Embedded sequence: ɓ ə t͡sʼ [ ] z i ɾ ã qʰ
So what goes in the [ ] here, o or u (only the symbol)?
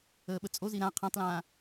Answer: o